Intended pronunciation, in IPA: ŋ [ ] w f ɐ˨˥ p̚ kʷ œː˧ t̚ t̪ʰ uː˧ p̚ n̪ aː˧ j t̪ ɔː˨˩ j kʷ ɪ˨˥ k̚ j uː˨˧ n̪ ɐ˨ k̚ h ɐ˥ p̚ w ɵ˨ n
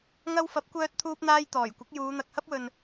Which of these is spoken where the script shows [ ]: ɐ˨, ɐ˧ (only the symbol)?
ɐ˧